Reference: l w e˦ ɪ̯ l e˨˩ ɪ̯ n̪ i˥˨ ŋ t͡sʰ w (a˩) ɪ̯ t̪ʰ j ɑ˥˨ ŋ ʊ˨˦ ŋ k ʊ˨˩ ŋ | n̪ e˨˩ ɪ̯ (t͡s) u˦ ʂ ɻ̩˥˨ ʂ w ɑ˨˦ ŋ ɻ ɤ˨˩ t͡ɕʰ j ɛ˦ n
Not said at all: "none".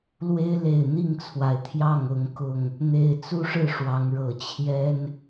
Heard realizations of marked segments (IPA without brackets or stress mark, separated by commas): a˩, t͡s